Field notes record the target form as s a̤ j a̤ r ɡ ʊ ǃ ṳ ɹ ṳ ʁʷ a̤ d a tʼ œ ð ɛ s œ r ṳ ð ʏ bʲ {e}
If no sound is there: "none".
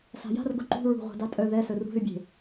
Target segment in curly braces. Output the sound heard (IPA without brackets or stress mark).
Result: e̤